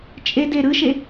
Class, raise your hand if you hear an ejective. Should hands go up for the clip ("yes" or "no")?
yes